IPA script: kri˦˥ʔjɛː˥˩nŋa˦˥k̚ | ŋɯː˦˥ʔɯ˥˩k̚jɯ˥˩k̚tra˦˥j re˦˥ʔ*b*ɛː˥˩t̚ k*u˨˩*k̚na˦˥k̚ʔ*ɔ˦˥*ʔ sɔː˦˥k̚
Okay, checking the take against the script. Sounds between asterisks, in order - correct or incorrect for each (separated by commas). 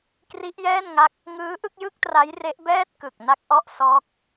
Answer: correct, incorrect, correct